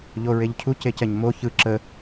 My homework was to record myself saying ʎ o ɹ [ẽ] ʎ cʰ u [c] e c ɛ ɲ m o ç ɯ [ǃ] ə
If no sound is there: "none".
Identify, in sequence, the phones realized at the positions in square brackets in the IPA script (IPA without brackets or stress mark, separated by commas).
e, c, ǁ